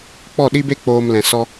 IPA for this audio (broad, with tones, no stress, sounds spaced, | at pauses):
k͡p ɔ˦˨ ɗ i˦ b e˦ k͡p oː˨ m l ɛ̃˨ s ɔ˧